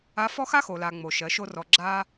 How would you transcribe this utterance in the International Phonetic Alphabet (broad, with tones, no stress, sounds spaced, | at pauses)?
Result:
a˧˥ f ɔ˥ x a˥ x o˩ l a˩ ŋ͡m o˩ ʃ ɜ˩˧ ʃ o˧ r ɔ˩ ɡ͡ǁ a˧